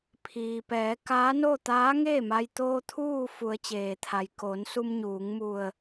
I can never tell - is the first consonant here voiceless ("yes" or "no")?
yes